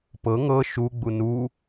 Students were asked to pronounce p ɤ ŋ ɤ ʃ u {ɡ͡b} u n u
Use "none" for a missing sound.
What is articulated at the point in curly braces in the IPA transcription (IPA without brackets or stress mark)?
ɡ͡b